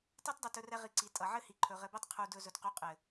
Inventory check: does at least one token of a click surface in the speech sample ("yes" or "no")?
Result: yes